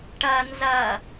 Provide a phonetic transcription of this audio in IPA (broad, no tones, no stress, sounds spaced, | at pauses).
ʈ ɐ n z ɐ